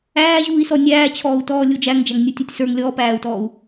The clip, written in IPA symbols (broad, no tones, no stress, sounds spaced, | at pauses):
æː ʑ uː i̯ s ɔ nʲ æː t͡ɕʰ ɔː u̯ t ɔː lʲ u d͡ʒ æ ŋ d͡ʒ æ ŋ nʲ u tʲ u tʲ s ə˞ ŋ lʲ ɔː p æː u̯ t ɔː u̯